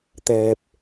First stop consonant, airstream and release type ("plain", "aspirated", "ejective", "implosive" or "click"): plain